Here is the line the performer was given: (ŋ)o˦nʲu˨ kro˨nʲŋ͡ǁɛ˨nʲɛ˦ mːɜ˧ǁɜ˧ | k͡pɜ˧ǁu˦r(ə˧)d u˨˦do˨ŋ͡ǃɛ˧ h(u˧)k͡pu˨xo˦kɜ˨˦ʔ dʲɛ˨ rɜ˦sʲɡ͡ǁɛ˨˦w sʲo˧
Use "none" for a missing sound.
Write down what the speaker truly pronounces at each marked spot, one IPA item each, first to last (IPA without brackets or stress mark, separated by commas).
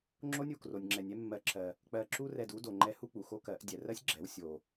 ŋ͡ǁ, ɛ˧, u˦